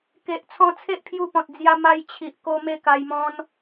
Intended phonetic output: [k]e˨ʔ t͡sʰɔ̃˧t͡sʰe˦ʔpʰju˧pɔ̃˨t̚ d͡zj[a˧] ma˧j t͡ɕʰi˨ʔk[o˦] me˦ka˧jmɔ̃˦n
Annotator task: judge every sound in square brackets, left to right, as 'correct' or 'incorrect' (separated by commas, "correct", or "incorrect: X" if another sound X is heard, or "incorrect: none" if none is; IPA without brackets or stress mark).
correct, correct, incorrect: o˧